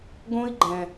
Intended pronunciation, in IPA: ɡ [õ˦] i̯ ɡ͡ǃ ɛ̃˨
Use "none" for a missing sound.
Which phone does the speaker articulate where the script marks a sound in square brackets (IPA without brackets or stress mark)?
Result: õ˦